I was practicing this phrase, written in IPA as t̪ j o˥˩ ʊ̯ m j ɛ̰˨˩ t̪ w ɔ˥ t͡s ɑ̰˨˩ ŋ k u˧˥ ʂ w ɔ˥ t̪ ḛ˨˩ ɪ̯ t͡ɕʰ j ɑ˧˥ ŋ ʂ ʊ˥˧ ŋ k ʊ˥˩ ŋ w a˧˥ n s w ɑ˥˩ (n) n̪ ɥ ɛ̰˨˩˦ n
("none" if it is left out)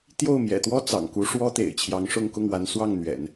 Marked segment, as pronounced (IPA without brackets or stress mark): ŋ